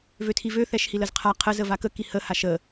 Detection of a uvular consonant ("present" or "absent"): present